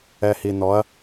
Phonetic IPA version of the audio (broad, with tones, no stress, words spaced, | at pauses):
ɛ˨hi˨nɔ˨˦ɐ̯